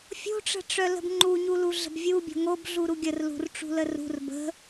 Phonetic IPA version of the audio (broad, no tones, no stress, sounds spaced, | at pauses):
fʲ o̤ ʈ͡ʂ ə̤ ʈ͡ʂ œ l ə̤ b ŋ͡ǃ u ɲ u l u ɮ ə̤ b vʲ u bʲ o̤ ŋ o b ɮ u ɾ u ɡʲ ə r l ṳ r ʈ͡ʂ ṳ l ə r ṳ r b ə̤